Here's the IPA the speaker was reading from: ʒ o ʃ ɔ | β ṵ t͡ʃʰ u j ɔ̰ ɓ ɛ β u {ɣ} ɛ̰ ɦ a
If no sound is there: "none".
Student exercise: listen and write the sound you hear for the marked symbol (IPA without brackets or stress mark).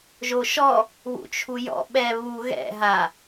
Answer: ɣ